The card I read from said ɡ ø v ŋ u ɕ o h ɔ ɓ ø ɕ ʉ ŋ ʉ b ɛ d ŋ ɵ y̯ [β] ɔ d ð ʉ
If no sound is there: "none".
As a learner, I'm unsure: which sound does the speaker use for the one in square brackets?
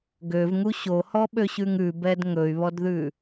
β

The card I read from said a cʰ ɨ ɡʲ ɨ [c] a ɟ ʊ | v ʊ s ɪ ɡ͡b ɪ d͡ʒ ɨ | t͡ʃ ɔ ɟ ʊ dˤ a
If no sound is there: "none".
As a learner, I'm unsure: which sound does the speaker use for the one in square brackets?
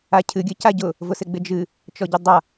c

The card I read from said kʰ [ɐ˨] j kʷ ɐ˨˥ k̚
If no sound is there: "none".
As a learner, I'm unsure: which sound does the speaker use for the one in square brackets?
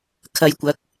ɐ˨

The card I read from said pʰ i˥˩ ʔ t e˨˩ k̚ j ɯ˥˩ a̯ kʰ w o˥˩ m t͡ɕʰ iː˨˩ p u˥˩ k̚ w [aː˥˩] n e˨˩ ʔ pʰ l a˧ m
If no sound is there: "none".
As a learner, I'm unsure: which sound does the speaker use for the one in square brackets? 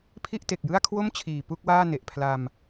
aː˥˩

